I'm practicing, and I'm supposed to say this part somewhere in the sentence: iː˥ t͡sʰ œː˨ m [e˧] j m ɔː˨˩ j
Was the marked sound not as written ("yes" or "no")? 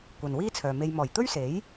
no